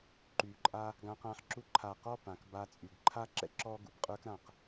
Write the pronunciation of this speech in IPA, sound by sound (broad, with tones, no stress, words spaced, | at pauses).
ǃy˨ǃʼa˦ | ɡã˧qã˧ħ ǁu˧ǃʰa˨qɔ˦˨ pã˨kba˧t͡sʼy˨ɡ ǃʰa˦ǁɛ̰˦ ǁɔ˦ ɡṵ˨bqʼə˞˦kɾã˨q